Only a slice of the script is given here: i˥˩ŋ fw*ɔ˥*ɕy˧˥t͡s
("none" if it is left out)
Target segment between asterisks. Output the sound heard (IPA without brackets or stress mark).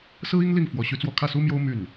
ɔ˧˥